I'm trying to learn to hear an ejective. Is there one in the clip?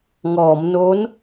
no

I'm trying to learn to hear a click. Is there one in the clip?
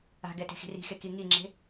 yes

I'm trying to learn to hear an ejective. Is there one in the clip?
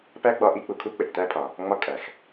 yes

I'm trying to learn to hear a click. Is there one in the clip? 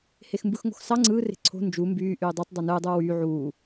yes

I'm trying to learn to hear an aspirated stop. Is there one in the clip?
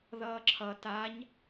yes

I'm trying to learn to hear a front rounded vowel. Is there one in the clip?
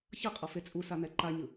no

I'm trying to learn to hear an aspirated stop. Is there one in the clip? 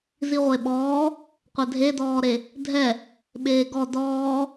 no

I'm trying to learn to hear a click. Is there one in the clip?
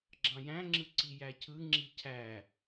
yes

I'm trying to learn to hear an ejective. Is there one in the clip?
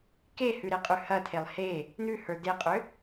yes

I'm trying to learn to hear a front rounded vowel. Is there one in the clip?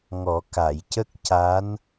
no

